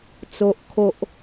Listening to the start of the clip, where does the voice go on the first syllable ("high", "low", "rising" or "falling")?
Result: low